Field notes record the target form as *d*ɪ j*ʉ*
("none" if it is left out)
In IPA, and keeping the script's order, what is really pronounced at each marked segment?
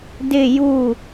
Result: d, u

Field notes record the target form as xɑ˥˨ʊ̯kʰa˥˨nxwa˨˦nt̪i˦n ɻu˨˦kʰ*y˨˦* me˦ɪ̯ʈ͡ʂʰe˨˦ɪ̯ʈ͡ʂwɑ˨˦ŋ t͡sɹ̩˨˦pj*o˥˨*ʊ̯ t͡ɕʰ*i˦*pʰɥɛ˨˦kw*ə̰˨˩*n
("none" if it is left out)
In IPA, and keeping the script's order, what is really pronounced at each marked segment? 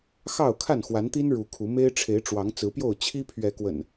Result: u˨˦, o˥˨, i˦, ə̰˨˩

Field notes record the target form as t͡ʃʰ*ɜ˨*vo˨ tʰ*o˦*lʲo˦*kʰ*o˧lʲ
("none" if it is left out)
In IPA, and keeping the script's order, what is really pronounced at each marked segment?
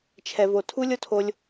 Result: ɛ˨, u˦, tʰ

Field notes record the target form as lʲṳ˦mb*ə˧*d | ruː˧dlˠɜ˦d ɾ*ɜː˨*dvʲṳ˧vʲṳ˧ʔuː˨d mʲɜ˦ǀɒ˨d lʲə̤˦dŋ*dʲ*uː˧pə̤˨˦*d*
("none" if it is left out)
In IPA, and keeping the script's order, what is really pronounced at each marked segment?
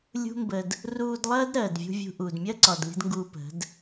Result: ə˧, ɜː˨, ɡ, d

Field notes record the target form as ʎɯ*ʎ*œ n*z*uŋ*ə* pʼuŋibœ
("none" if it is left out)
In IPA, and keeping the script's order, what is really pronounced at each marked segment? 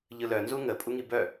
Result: l, z, ə

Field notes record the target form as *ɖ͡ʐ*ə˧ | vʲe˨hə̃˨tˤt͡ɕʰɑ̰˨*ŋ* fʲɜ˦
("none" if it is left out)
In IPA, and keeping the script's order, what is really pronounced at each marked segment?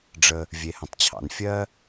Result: ɖ͡ʐ, n

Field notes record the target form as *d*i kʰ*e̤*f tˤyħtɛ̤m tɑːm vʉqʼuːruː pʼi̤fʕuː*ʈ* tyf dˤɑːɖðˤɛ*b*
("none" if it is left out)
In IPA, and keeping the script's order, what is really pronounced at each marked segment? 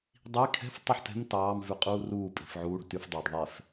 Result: dˤ, ɛ̤, ɖ, f

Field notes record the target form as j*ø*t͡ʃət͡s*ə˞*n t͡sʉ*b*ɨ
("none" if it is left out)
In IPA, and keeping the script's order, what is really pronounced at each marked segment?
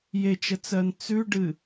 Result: e, ɜ, ɖ

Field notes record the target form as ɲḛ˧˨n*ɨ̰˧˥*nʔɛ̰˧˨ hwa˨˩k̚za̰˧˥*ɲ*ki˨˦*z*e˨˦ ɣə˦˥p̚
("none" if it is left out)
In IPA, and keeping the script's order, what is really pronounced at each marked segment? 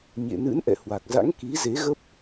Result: ɨ̰˧˥, ŋ, z

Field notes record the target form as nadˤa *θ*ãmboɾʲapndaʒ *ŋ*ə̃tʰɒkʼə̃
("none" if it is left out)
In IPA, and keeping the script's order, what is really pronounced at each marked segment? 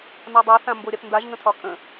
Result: θ, ŋ

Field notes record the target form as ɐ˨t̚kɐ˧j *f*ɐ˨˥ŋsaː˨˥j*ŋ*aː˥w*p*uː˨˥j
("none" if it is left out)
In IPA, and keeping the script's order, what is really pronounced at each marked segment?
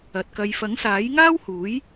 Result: f, ŋ, h

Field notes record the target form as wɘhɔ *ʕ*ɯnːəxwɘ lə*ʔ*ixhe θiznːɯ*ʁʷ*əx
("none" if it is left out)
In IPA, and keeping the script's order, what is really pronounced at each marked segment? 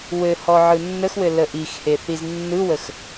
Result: ʕ, ʔ, w

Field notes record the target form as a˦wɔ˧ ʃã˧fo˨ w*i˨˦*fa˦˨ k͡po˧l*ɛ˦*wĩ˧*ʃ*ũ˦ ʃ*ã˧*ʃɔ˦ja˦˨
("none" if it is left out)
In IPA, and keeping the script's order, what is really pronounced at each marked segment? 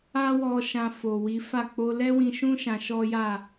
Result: i˨˦, ɛ˦, ʃ, ã˧

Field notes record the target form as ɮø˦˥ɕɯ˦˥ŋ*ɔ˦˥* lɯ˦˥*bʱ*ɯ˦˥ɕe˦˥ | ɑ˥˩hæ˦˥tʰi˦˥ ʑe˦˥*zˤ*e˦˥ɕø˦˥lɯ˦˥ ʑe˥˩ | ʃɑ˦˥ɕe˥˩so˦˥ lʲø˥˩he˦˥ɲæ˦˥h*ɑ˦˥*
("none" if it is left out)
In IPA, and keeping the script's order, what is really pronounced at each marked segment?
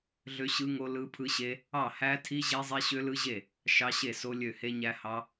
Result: o˦˥, pʰ, zˤ, ɑ˦˥

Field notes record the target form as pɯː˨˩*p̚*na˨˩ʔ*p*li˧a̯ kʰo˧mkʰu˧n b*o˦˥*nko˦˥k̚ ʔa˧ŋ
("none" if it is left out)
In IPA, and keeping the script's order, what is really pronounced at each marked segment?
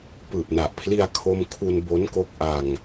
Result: p̚, pʰ, o˦˥

